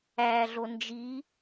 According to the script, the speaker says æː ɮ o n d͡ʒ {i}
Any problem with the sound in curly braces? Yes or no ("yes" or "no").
no